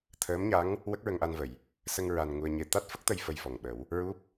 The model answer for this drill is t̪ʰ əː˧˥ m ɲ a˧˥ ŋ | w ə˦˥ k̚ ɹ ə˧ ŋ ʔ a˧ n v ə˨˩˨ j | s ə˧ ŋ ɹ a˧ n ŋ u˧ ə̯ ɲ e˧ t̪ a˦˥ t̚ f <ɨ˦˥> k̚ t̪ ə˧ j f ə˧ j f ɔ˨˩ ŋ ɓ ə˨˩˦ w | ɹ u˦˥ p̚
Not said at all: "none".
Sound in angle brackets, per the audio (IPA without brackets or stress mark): ə˦˥